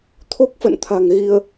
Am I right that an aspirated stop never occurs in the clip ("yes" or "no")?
no